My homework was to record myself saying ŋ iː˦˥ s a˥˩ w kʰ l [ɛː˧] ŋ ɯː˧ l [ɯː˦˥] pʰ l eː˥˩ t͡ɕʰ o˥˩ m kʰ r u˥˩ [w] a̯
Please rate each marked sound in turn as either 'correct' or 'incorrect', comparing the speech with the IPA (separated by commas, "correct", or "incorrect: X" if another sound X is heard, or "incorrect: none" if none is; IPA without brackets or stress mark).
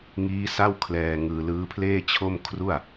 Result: correct, correct, incorrect: none